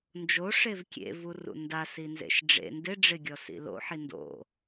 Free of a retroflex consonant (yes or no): no